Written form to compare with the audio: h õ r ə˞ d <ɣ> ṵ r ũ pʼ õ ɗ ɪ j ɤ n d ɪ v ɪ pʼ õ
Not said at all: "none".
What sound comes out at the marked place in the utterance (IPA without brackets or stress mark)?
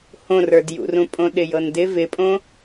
j